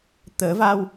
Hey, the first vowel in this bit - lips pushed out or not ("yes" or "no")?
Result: no